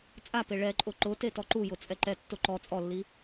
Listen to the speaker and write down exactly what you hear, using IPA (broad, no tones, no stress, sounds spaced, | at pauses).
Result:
t͡sʼ a p e ɭ ɛ ǃʼ ʊ ǃ ʊ t e t ɔ ǃ u j ʊ t͡sʼ ɛ ǃ ɛ tː ʊ ǃ ɔ t͡sʼ ɔ lː i